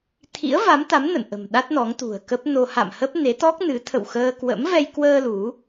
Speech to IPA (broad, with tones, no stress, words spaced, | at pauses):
t̪ʰḭ˧˥ə̯ va˨˦mt̪a˨˦m nə̰˧˨n ʔə̤˨˩m ɗa˦˥t̚nɔ˨˦ŋ t̪ṳ˨˩ə̯kə˦˥p̚no˧ ha̰˧˨mhə˦˥p̚ ne˨˦t̪ɔ˦˥k̚nɨ˨˦ t̪ʰə̰˧˨wxəː˧ kwə̰˧˥mvɛ˧j kwəː˧ lu˨˦